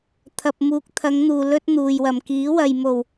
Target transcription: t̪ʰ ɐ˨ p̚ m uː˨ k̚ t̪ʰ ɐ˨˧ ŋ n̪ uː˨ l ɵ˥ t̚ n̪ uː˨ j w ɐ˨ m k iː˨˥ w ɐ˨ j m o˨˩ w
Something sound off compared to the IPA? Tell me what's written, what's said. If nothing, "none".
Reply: none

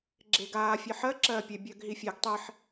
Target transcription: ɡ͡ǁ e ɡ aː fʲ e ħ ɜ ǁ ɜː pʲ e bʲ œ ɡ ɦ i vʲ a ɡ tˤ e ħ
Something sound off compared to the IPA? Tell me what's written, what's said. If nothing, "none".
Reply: vʲ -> fʲ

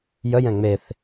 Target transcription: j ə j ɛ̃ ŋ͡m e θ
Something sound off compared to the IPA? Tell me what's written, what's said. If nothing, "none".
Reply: none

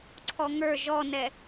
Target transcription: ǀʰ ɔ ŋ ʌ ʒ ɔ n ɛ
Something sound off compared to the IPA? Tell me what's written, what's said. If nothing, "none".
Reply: ʌ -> ə˞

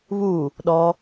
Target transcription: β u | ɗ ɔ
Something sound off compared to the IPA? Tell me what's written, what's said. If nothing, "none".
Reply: none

